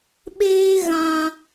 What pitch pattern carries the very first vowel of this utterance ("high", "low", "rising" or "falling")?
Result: high